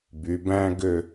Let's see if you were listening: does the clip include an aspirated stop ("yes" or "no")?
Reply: no